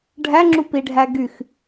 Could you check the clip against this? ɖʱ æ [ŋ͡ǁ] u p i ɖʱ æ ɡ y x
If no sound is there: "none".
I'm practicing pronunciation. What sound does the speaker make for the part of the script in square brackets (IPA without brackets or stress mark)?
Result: ŋ͡ǁ